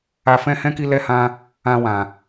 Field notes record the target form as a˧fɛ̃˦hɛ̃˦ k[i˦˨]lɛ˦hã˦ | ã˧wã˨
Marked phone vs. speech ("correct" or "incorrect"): incorrect